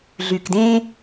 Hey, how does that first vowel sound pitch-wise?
low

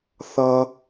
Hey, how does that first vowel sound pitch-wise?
high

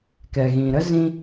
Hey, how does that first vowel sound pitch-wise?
low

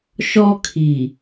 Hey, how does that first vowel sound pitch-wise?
high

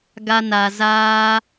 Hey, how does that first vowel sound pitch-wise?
high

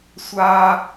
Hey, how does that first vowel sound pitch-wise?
high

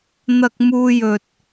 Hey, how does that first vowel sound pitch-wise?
high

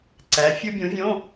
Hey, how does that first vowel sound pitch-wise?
rising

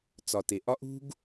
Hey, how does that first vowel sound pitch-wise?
low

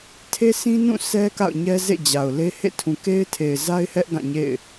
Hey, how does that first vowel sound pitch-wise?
high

